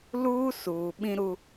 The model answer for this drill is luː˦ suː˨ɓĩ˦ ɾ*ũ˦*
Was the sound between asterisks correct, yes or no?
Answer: no